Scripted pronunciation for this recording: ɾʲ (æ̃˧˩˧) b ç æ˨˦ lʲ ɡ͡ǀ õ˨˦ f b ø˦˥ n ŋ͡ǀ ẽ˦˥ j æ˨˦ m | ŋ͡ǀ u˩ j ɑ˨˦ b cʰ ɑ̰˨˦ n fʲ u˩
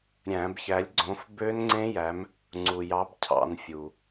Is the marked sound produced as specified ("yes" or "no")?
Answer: yes